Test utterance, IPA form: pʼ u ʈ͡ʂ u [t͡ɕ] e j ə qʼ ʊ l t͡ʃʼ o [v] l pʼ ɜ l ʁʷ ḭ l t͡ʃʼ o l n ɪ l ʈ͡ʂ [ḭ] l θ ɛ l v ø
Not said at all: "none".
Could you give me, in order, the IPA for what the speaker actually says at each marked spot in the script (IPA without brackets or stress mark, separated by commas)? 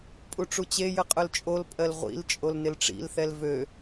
t͡ɕ, none, ḭ